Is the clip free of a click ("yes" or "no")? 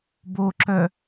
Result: no